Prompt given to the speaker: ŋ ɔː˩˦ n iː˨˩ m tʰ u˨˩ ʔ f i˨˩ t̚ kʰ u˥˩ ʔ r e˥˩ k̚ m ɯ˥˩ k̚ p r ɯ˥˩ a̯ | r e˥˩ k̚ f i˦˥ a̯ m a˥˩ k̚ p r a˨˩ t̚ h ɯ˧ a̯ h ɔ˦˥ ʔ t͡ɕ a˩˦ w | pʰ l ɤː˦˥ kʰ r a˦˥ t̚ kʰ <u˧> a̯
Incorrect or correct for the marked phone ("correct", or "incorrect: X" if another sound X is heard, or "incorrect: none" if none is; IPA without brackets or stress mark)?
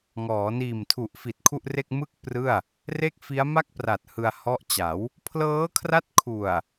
incorrect: u˨˩